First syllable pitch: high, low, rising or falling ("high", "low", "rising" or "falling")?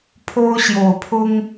high